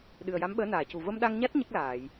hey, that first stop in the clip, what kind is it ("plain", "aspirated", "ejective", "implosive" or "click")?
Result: implosive